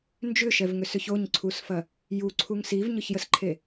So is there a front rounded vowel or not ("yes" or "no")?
yes